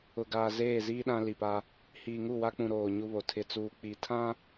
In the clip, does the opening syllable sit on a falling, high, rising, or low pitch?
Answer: low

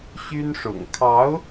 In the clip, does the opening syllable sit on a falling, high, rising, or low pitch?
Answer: high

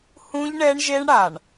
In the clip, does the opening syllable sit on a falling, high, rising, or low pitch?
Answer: high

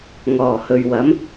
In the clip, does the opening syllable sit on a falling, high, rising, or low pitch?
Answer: low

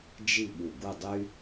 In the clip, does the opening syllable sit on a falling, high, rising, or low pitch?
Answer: falling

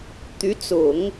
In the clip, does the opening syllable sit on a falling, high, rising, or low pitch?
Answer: rising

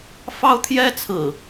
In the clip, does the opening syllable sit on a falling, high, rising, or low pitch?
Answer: high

